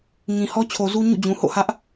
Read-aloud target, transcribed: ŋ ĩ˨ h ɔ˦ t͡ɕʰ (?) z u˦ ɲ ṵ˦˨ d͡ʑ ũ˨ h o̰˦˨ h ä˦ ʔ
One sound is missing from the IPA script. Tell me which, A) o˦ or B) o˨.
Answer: B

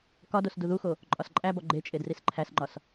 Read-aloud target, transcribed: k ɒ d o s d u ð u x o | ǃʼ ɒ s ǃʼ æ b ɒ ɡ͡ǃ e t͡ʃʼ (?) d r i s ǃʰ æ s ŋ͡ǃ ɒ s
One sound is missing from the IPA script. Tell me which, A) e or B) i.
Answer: A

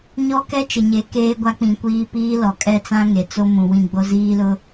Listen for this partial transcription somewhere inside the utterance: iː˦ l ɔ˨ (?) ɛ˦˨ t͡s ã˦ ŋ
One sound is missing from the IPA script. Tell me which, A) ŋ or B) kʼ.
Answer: B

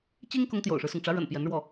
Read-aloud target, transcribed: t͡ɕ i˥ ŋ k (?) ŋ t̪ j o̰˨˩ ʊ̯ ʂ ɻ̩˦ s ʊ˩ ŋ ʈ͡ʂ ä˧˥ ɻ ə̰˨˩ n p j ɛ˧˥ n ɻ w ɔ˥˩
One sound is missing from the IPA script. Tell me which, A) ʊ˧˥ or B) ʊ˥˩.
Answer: A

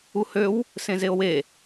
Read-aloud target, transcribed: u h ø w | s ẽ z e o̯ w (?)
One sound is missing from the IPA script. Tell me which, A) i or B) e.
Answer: B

